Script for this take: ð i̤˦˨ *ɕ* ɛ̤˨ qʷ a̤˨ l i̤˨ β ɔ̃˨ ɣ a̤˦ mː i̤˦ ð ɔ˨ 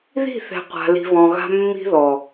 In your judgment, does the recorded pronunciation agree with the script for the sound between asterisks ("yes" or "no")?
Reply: no